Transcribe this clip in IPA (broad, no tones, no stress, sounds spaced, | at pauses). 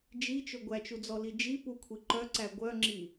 d͡ʒ i t͡ʃ ɵ ɡʷ æ t͡ʃ u d͡z ɔ l i d͡ʒ i p u kʷʰ i ǃ œ ǀ æ ɡʷ œ ŋ͡ǁ i